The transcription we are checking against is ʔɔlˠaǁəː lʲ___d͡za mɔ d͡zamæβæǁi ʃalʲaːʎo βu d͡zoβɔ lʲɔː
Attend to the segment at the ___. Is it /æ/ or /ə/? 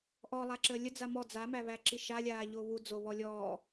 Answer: ə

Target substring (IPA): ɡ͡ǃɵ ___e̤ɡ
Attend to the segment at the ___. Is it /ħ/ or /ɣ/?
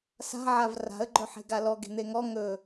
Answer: ħ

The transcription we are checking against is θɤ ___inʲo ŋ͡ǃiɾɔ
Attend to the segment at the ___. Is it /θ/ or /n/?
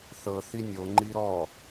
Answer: θ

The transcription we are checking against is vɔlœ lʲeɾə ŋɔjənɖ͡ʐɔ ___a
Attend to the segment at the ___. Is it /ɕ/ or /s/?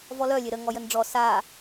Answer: s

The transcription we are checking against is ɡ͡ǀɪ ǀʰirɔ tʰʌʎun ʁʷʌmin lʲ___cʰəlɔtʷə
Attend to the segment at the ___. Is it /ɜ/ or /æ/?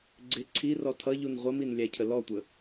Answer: æ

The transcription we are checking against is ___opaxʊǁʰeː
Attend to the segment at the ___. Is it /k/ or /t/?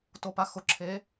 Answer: t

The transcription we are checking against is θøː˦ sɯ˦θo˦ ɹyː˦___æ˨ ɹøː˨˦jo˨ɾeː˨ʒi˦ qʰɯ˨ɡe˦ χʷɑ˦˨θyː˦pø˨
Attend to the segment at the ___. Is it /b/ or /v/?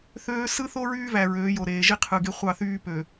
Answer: v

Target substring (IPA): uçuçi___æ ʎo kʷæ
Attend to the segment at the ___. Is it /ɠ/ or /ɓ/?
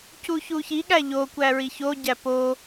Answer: ɠ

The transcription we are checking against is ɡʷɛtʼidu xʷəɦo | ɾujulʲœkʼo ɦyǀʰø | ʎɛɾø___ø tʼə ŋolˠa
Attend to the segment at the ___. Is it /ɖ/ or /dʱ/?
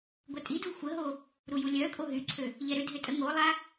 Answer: dʱ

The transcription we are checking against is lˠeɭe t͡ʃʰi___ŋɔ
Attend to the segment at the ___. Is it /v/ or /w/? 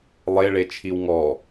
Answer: w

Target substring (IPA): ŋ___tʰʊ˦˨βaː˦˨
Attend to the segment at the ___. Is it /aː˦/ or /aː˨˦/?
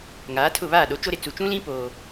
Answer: aː˨˦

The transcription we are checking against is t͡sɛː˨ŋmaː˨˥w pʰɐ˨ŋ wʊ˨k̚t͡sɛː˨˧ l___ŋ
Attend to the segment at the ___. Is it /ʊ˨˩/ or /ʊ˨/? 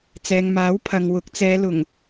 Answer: ʊ˨˩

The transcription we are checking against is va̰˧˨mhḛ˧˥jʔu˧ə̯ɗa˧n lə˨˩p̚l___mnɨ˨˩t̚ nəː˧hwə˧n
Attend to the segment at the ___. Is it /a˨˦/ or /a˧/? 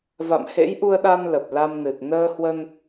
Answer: a˧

